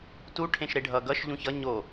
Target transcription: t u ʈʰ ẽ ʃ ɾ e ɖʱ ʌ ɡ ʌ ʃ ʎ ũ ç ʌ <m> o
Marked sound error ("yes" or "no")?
yes